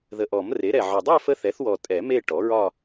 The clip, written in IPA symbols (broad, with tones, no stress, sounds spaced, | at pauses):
ð ə˨˩ ʔ ɔ˨˩˦ m r e˩˥ ɾ ɛ˨˩ ʕ ɒ˨˩ dˤ ɛ˥˧ f ə˧˥ θ ɛ˩˥ θ w ɔ˨˩ tʼ ɛ˨˩˦ m e˥˧ ʈ ɔ˩˥ ɹ ɒ˥˧